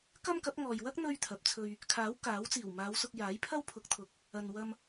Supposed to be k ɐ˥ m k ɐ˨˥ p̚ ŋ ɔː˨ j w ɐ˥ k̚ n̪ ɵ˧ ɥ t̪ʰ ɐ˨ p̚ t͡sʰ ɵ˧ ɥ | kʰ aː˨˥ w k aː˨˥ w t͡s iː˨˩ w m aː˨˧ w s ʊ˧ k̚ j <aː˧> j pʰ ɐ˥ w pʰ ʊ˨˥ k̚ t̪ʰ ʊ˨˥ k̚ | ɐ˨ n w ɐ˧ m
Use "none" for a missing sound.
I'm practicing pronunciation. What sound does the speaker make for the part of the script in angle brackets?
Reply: aː˨˥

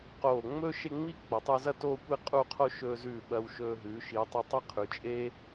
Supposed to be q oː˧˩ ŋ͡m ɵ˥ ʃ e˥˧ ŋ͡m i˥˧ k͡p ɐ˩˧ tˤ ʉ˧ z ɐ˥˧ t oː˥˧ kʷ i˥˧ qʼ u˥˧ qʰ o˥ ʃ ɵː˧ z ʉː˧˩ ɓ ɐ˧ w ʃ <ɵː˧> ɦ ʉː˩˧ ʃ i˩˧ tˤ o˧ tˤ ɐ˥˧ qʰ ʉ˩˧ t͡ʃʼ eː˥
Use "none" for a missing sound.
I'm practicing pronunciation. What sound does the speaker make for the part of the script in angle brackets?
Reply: ɵː˧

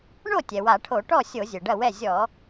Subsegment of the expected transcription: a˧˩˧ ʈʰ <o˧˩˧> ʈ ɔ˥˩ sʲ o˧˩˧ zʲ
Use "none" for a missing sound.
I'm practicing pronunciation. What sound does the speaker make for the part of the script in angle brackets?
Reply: o˧˩˧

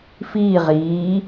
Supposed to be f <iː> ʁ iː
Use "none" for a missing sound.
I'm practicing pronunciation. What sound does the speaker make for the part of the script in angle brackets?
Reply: iː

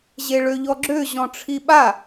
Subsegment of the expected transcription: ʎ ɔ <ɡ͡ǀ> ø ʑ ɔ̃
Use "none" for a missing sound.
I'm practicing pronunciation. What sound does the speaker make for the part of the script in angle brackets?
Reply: ɡ͡ǁ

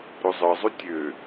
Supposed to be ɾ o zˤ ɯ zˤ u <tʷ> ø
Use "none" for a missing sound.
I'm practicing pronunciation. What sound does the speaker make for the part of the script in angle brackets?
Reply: tʲ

